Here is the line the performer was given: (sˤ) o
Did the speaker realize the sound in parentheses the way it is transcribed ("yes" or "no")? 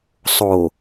yes